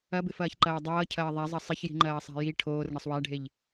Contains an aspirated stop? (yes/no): yes